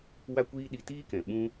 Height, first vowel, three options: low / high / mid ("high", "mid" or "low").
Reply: low